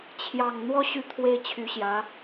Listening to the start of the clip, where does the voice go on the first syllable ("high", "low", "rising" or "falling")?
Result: low